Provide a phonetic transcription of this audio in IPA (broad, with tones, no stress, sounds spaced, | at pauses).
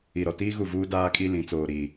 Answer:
i˨ ɾ ɔ˨ t iː˦ ɣ u˦˨ v uː˦ d aː˦ kʼ i˦ l ĩ˨˦ t͡s oː˨ ɾ i˨